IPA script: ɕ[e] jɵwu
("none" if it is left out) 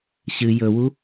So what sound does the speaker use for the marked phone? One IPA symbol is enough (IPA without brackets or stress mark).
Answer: ɨ